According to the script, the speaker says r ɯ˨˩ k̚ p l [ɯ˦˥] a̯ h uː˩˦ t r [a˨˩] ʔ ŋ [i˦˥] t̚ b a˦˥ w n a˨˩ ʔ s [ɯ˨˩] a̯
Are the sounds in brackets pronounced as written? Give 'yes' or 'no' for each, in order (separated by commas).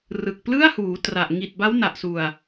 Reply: no, yes, no, no